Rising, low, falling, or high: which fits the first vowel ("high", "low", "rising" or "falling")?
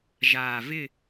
low